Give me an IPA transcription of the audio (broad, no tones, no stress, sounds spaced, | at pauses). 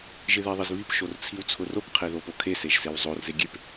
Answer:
ʒ ɪ ð e ðˤ ɪ z β i p ʃ o r t͡sʰ i w t͡sʰ ʊ r o k qʰ e ð o p o kʰ e s e ʒ s e w zˤ o r z e ɡʲ e p